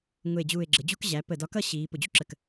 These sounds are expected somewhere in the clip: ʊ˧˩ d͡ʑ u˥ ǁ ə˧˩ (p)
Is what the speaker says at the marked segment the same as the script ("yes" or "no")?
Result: no